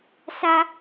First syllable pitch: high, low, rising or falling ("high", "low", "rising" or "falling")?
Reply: high